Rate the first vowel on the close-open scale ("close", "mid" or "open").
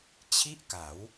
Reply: close